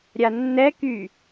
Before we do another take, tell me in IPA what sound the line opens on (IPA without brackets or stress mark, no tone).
ɾʲ